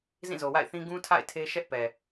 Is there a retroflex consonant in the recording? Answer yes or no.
no